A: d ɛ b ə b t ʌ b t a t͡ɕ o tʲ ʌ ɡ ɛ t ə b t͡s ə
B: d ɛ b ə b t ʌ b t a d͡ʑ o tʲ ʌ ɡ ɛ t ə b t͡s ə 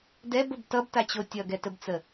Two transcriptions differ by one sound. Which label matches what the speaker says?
A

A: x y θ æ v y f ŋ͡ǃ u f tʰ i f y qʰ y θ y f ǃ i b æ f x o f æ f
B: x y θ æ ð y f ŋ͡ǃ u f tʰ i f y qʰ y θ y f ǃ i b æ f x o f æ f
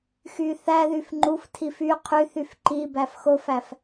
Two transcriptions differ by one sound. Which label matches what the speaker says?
B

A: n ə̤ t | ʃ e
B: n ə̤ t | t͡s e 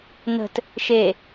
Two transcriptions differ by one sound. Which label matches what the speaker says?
A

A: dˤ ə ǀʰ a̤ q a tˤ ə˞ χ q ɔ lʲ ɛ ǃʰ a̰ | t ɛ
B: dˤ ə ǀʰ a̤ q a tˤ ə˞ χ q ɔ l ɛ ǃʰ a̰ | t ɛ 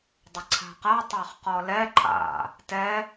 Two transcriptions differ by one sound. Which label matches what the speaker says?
B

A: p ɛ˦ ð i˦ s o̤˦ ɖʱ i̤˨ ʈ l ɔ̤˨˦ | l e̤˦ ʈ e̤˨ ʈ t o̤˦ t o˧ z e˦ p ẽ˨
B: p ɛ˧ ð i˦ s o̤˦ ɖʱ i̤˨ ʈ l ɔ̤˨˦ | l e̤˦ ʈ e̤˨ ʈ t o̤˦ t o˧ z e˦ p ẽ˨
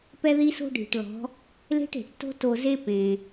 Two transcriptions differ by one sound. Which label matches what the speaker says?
A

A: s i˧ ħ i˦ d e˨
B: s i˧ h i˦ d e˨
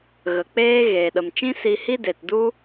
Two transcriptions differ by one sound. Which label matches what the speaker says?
B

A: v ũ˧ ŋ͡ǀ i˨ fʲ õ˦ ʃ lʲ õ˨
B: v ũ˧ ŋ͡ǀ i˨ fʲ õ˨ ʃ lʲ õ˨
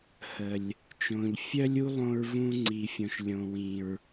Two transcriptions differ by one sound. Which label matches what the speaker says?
B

